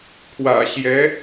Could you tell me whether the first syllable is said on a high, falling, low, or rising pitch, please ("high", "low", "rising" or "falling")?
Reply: low